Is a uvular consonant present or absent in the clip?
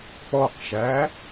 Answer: present